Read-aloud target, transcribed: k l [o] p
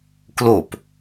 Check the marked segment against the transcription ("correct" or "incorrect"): correct